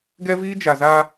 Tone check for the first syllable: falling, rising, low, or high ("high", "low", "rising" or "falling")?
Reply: high